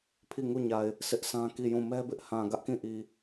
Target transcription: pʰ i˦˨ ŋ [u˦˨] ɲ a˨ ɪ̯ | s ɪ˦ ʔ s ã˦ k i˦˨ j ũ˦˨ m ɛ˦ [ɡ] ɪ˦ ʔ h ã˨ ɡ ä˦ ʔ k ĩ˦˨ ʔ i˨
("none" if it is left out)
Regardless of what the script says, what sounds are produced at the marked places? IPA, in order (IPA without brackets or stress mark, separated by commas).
u˦˨, b